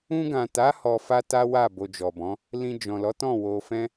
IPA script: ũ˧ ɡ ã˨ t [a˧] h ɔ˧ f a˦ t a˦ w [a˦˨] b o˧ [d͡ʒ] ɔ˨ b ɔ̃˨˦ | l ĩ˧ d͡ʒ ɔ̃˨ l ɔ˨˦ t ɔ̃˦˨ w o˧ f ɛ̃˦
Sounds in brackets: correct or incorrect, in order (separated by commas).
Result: incorrect, correct, correct